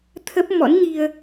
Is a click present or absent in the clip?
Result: absent